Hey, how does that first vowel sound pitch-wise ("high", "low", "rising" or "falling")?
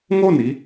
falling